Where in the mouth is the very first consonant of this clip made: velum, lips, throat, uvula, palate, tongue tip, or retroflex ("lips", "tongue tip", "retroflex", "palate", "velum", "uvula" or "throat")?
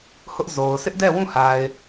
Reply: throat